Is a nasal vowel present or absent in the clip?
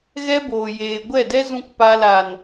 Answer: present